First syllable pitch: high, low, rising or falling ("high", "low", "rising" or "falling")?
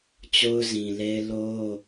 high